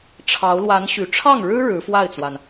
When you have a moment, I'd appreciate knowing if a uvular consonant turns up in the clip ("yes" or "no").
no